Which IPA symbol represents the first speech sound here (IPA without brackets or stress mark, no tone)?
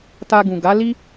t